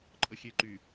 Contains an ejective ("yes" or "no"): yes